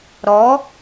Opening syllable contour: rising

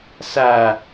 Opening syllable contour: low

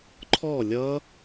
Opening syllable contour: falling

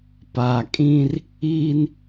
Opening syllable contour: low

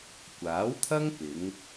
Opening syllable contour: rising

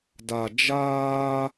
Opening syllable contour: low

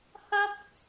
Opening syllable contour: high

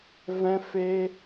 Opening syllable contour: high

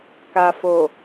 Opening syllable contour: low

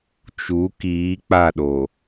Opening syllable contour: rising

